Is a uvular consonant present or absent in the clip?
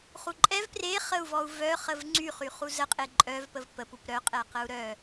present